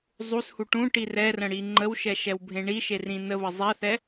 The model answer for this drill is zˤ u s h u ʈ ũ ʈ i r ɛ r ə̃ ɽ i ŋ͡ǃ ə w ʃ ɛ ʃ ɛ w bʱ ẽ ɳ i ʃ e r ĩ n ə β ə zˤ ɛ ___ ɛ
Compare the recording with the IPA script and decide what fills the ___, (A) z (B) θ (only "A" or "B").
B